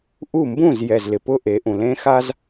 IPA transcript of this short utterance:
ʔu˦˨ mbũ˦˨zjɛ˨z lɪ˨pʊ˦ʔe˨˦ʔũ˨ lẽ˦xa˦z

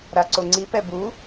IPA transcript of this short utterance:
ɾaǀoŋ͡ǀi pɛbu

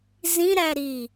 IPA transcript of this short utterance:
zĩɾæ ɾi

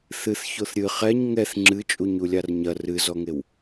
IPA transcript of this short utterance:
θɨθ çoθɾʲɨ χɛɲ ŋɛθ ŋ͡ǁɨt͡ʃʼuɲulʲar ɲɐ rɨzɔŋew

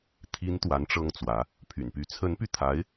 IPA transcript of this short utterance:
t̪ʰi˧˥n t̪wa˧˥nʈ͡ʂɤ˥ŋt͡swä˧˥ | pʰy̰˨˩npy˥˩ t͡sʰə˧˥npy˧t̪ʰa˧˥ɪ̯

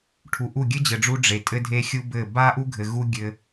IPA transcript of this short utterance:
ʈʰu˨ʔu˦˨ ɡʲɘ˦d͡ʑɘ˨ɖ͡ʐu˧ ɖ͡ʐe˨tʼɘ˦dʱe˦xʲu˦ bɘ˦˨ ba˦ʔu˦ɡʱɘ˨ ɣu˦ ɡʲɘ˧

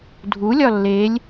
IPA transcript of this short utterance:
dʱulʲɒ lːelʲ

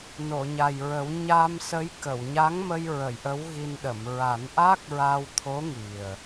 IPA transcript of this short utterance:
no˨˩˨ɲa˨˩jɹə˨˩˦w ɲa˧msə˧˥j kə˨˩˨wɲa˧˥ŋmə˧j ɹə˨˩˨j ʔə˧˥wɣi˧nɗə˨˩˨m ɹa˨˩˦nʔa˦˥k̚ɹa˧wt̪ʰo˧˥ ŋi˨˩ə̯

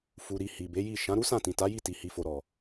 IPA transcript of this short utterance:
fu˨ɾi˨ hi˨be˨˦ji˦˨ ʃã˨˦ɾu˦sã˦˨tĩ˨ ta˨˦ji˦˨ ti˨hi˨fo˨ɾɔ˨

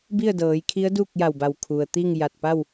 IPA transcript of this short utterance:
bi˥˨ə̯dɤː˩˧jkʰi˧˥ə̯ duː˥˨k̚ja˧˩wba˧˩w kʰu˩ə̯t̪i˥˨ŋ ja˧˩t̚pa˥˨w

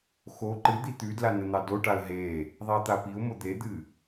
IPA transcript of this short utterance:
xo ǃɨd̪i t̪ʉdla nən̪ɑdoʈaə̯ ɦe | ðˤiə̯t̪apiʊ̯mo d̪ed̪ɨ

